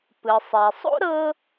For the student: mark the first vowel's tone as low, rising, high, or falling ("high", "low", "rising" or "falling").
low